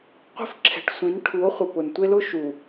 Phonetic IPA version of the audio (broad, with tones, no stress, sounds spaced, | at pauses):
qʷ i̤˦ f ǁʰ ɛ̤˨ ʈ sʷ ĩ˨˦ n ʈʰ u˨˦ o̯ χʷ ɪ˨ p ʊ˨ n tʷ e˦ l ʊ˦ ʃ u˨